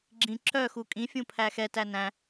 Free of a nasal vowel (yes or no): no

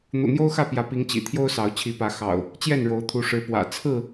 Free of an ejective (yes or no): yes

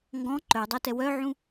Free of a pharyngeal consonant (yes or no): no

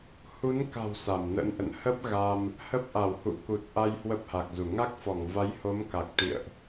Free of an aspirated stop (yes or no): yes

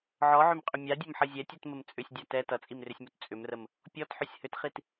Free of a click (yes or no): yes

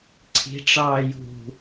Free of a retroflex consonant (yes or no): no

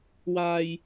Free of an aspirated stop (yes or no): yes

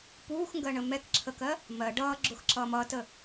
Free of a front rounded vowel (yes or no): yes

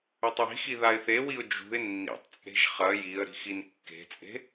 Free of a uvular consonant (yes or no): no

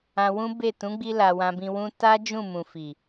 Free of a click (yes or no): yes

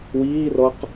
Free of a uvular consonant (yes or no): no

